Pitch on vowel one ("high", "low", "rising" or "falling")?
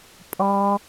high